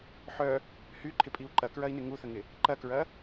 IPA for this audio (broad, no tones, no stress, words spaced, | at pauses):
ħœ | hyǃʰɪpʼiu̯ ǃɐkɹɐi̯nɪ ŋuθəŋɪ | ǃɐkɹɐ